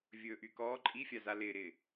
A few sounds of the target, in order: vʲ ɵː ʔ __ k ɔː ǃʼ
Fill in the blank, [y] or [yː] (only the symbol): y